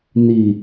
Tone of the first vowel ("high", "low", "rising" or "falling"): low